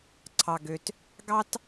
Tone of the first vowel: low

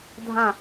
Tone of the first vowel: falling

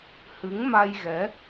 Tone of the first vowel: rising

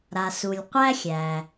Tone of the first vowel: low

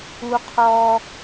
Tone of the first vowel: high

